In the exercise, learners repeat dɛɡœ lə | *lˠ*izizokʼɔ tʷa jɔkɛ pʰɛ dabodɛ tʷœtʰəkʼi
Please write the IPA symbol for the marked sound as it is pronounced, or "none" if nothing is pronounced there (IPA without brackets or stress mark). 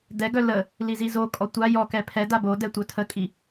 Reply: l